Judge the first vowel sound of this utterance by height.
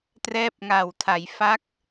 mid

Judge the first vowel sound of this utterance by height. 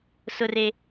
high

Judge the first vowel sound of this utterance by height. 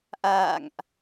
low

